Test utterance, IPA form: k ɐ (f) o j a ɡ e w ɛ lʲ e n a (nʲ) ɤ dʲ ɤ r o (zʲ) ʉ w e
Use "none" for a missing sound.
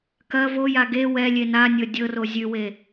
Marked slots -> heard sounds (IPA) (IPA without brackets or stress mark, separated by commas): v, nʲ, zʲ